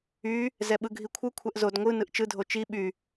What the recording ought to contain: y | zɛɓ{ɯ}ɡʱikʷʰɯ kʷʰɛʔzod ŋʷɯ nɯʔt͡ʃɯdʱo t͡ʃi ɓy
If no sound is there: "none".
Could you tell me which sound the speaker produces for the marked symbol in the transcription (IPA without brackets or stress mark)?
ɯ